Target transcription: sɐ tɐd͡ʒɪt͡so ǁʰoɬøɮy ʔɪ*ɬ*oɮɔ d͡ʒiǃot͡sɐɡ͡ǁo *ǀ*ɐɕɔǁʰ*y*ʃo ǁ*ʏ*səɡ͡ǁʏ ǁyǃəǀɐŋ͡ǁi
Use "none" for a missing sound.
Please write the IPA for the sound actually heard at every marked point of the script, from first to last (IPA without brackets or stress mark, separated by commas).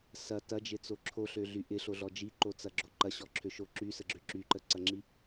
ɬ, ǃ, ø, y